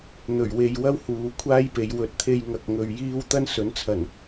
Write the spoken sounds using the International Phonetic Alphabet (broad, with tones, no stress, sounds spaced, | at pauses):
n̪ ɵ˨˩ ɥ w e˨ j w ɐ˥ w h uː˨˧ kʷʰ aː˥ j p e˨˧ j w ɵ˨ t̚ t̪ʰ e˧ j ŋ ɐ˧ k̚ ŋ ɵ˧ ɥ j iː˥ w t̪ ɐ˥ n s ɵ˨˥ n t͡sʰ ɐ˨˩ n